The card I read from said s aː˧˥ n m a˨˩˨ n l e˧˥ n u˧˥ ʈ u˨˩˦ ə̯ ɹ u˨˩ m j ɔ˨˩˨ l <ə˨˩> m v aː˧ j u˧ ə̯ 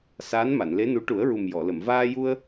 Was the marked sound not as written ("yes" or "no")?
yes